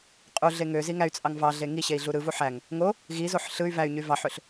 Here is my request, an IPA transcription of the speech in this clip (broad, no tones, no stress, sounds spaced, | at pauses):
qʼ u ɮ e ŋ ø z i ŋ æ y̯ t͡sʼ ɑ ŋ v ɑ ɮ e ŋ i ɕ e i̯ ɮ u ɾ ɯ v u ħ æ ŋ | ŋ o | ɣ i z o ħ ɬ ɯ y̯ v æ y̯ ɲ y v ɑ ħ ø ɬ